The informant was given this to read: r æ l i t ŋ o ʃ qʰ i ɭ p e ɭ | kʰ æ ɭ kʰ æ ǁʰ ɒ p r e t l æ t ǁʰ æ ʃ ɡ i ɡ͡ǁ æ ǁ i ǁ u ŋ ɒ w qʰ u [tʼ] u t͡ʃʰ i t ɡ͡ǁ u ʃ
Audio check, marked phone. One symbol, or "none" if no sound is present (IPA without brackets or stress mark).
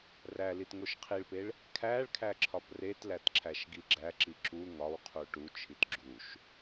ʈ